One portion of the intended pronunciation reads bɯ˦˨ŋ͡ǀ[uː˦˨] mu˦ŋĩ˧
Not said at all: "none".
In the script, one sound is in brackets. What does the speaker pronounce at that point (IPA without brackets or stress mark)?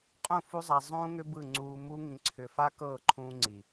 uː˧